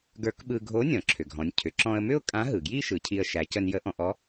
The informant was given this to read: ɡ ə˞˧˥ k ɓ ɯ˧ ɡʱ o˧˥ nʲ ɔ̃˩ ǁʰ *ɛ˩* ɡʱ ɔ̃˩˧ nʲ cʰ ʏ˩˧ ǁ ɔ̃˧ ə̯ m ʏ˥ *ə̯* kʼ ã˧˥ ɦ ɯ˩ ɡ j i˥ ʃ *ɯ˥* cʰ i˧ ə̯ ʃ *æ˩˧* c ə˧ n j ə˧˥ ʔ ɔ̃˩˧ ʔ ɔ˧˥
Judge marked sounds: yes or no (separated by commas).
no, no, no, yes